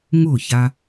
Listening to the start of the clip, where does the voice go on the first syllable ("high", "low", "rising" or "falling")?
falling